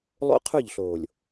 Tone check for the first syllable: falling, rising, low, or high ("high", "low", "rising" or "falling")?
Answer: high